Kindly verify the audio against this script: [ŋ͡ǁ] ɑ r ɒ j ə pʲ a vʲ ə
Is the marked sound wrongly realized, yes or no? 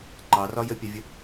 yes